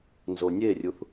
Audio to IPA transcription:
n z o nʲ e rʲ u θ

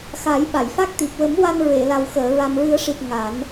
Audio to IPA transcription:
x a˨˩˦ j ɓ a˨˩˨ j f a˦˥ k̚ t̪ i˨˩ p̚ w ə˨˩˦ m w a˧ n ɹ e˨˩˨ l a˨˩ w x əː˨˩˨ ɹ a˨˩ m ɹ ɨ˨˩˦ ə̯ ʂ i˨˩ t̚ ŋ a˨˩˦ n

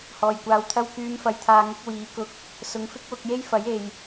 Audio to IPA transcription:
h ɔː˨ j kʷ aː˧ w t̪ʰ ɐ˥ w k yː˨˧ m f ɐ˨ j t̪ʰ aː˧ ŋ ɪ˧ k̚ w iː˨˥ k ʊ˧ k̚ | s ʊ˨˧ ŋ f ɪ˥ k̚ w ʊ˧ k̚ j e˥ j f ɐ˨˥ j e˨ j

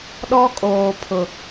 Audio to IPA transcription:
ɗ ɔ˦ kʼ oː˨ pʰ ʊ˨

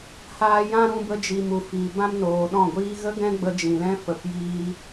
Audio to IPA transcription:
h aː˧ j ã˦ ɾ ũ˧ b ə˧ d͡ʒ i˨ m u˨ f iː˨ b ã˦ m n oː˨ ɗ ɔ̃˦˨ ɡʷ iː˦ ɣ ə˦ ɡ ɛ̃˦ ɡ͡b ə˧ d͡ʒ ĩ˨ l ɛ̃˦ f ə˨ p j iː˦

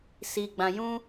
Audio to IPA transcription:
s i˨ ɡ͡b ã˨ j ũ˧

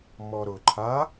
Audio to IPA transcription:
m ɔ ɾ ʊ ǃʰ a

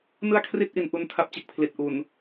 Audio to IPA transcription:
n ɯ˥˩ a̯ kʰ r i˥˩ t̚ ʔ i˩˦ n ʔ u˧ n tʰ a˦˥ p̚ t͡ɕ e˨˩ k̚ pʰ l i˨˩ t̚ ʔ u˨˩ n

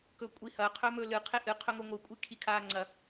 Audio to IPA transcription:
k ɵ kʷʼ i h ɐ qʰ ɵː m ɵː l ɨ qʰ e ʔ ɨ qʰ ɵ ŋ o ŋʷ ɨ kʷʼ i kʰ i kʰ aː ŋ͡ǀ ɐ

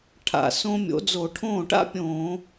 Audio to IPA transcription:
ʈʰ a̰˧˩ s õ˥ mʲ o̰˨˥ d͡z o˧˩˧ ʈʰ õː˥˩ ʈ a̰˥ pʲ õː˧˩˧

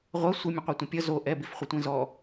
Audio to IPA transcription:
ʁʷ ʌ sʷ ɪ mʲ ə̃ qʷ ɛ tʷ ə̃ pʲ ʌ z o ʔ ɛ b i f χʷ ə tʷ ẽ z ɔ

